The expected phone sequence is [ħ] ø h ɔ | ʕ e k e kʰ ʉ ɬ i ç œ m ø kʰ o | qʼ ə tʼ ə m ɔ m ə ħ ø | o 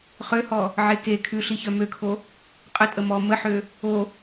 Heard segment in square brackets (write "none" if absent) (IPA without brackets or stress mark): χ